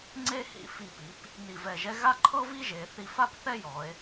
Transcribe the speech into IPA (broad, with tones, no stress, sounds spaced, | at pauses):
ŋ͡ǀ e˥ h ḭ˧˩ f i˧˩ p i˩˧ p | n i˧˩ v ɛ˧˩ ʒ ɛ˥ ɣ a˥ ǃʰ ɤ˥ v i˥ ʒ e˩˧ θ i˧ f a˥ p θ ɛ˥ j ɔ˩˧ e̯